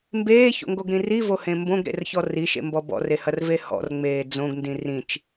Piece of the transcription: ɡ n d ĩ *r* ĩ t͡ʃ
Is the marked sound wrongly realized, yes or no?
no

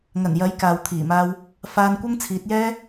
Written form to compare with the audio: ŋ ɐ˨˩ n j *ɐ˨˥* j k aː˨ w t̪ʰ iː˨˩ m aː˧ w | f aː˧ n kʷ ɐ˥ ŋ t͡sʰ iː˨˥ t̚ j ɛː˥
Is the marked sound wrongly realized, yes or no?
no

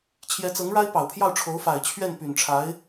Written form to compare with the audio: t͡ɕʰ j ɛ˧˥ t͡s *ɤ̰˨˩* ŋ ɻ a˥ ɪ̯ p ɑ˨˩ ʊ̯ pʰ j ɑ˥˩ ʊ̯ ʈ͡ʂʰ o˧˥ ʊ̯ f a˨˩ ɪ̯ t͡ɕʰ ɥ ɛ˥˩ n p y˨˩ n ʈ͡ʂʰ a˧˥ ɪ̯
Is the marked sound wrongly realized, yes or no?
yes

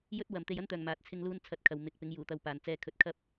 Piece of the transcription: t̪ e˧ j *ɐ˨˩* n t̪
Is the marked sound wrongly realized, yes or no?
yes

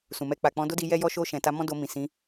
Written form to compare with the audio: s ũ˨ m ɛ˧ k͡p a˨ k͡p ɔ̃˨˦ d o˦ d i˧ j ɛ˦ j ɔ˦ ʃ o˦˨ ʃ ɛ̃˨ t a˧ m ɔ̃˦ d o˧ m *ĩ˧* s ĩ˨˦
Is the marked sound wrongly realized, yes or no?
yes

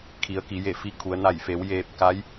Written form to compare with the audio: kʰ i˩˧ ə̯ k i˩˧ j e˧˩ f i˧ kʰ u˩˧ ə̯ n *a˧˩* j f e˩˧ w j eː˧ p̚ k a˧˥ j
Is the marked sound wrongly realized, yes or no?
no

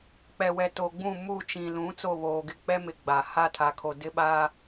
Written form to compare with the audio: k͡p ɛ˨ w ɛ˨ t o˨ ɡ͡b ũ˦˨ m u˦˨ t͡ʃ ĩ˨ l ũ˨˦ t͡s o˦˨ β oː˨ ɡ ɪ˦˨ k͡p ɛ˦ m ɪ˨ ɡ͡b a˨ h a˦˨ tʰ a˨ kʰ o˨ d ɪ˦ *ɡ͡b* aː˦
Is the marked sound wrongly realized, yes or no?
yes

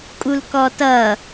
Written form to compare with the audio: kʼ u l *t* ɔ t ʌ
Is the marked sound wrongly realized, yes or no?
yes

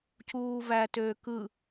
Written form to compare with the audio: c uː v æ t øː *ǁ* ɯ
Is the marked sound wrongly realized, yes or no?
yes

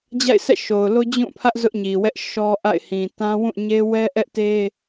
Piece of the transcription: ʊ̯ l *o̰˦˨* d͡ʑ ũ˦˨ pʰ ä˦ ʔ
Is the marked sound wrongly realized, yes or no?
yes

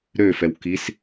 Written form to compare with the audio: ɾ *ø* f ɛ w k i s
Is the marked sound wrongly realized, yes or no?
no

